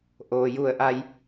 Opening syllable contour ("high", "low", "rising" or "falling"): low